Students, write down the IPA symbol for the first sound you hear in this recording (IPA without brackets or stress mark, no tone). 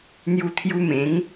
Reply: n̪